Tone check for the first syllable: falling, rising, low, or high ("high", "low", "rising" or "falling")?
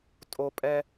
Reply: high